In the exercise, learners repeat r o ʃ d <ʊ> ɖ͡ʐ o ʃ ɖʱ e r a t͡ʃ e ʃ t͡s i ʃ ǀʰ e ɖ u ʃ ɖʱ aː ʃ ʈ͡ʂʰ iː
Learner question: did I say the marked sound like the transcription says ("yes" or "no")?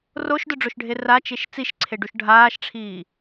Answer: yes